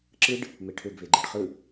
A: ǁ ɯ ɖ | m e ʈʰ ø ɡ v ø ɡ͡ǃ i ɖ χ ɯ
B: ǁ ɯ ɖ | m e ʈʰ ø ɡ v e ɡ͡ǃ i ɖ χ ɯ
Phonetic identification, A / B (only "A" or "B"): B